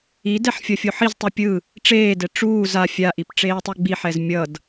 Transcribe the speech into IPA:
i d ɛ ħ fʲ ʌ fʲ o ħ i z tˤ u pʲ ɯ | ʈ͡ʂ eː d ɛ ʈ͡ʂ uː z a fʲ a ʔ i p ʈ͡ʂ eː tˤ e ɡ͡b i ħ ɛ z mʲ ʌ d

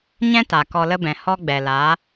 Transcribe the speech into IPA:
ɲ ɛ̃˦ t a˨ k ɔ˧ l ə˦ b ɛ̃˨ h ɔ˦ ɡ͡b ɛ˨ l a˨˦

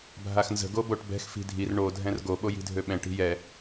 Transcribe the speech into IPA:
bʱ a x n z ə̤ ɡ o b o ʈ b ɛ̤ x f i̤ dʱ i r ɳ o dʱ ɛ̃ r ɡ o ɓ o j i̤ dʱ ø ɓ ɛ̃ ʈ i̤ j ɛ

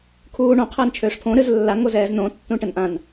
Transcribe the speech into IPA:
kʰ uː ɳ õ qʰ əː n t͡ʃʰ øː ʂ pʰ õ ɾ ɨ z lː a ŋ o z ɛː z n õ tː ũ ʈ ə n ʔ ã n

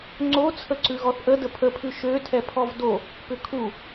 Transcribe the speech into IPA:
ŋ͡ǀ o t͡sʰ ə ǀ ʉ ɣ ɔ θ ʔ ə d ə pʰ ə pʰ ʉ ʃ ø tʰ ɛ pʰ ɔ v d o | p ʏ kʰ u

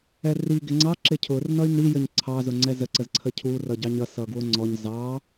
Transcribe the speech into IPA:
ɛ r i ɡ ɪ ŋ͡ǀ ɑ ǁ ɪ cʰ ʊ r n ʌ y̯ n i j ə ɲ ǀʰ ɑ z ʊ ŋ͡ǀ ɛ z ə ǀ ə z ǀʰ ə cʰ u r ʌ ɟ ɑ ɲ ʌ s ʌ ɡ w ʊ ŋ͡ǀ ɔ ɲ z ɑ

